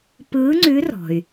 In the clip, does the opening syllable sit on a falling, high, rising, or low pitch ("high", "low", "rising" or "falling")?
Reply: rising